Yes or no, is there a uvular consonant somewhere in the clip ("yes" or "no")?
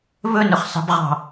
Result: yes